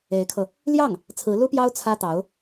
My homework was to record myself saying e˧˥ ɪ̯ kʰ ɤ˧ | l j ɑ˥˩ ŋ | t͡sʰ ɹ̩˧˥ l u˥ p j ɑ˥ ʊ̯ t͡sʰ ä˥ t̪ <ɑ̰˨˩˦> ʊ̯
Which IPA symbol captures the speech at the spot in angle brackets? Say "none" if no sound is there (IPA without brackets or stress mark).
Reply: ɑ˧˥